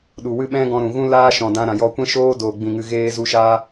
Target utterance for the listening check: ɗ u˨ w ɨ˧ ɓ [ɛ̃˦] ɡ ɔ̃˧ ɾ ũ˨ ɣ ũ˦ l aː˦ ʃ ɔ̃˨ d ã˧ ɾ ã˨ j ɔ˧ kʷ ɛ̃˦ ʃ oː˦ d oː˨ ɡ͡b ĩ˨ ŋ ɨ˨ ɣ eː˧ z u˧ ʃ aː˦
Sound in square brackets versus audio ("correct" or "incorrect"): correct